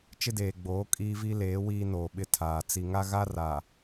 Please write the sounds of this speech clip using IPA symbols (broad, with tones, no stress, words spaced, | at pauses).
t͡ʃɪ˦deː˨ɡ͡boː˨˦ kʼiː˦vi˦leː˨˦ wiː˦noː˨ɓɪ˦ tʰaː˨ t͡si˨ŋa˦ɣa˦ ra˨